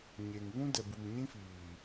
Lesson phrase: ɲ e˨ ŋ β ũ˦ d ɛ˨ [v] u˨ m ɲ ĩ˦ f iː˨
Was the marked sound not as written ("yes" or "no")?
yes